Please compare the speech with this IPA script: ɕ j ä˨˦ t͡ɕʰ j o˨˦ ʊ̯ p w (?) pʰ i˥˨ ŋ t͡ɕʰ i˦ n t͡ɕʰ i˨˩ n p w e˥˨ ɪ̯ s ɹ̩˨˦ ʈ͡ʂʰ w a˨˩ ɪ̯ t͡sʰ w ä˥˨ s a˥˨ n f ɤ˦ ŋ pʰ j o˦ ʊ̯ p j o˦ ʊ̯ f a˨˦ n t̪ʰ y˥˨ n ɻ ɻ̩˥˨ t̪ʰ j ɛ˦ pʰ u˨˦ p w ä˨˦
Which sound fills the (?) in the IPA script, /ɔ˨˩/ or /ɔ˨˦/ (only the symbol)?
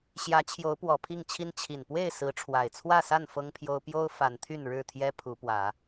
ɔ˨˩